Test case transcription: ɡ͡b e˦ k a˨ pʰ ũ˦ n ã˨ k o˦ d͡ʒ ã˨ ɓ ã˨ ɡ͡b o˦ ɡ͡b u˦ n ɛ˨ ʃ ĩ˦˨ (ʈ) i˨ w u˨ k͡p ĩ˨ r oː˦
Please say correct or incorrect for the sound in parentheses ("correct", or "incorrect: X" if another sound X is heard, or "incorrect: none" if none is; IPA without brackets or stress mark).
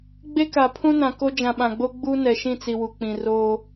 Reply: incorrect: t͡s